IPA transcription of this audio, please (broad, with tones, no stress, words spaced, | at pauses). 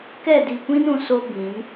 kɛ˦˨di˨kʷĩ˦n ũ˨ so˦bĩ˨˦n